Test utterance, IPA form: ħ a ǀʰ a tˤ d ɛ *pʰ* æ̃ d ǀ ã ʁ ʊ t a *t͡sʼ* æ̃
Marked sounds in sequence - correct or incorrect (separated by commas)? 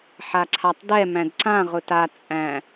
incorrect, correct